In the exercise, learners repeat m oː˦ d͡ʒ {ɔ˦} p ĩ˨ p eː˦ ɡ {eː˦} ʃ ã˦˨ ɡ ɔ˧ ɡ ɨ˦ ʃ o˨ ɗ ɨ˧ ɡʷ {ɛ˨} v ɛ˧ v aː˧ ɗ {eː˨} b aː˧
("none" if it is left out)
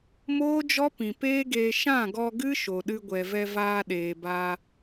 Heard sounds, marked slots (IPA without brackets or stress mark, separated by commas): ɔ˦, eː˧, ɛ˨, eː˨